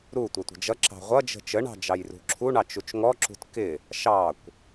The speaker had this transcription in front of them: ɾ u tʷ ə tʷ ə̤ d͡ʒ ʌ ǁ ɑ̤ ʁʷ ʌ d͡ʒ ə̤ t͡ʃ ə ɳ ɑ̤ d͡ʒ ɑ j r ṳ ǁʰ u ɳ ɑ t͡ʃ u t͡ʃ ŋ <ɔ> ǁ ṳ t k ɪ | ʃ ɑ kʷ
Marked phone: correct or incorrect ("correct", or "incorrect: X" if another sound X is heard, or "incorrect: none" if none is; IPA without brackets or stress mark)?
correct